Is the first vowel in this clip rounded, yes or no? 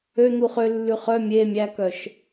yes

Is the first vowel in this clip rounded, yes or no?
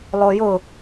yes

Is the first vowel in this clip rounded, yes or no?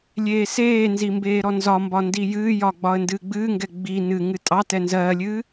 no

